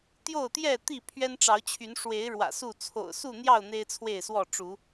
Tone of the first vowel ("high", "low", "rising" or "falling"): falling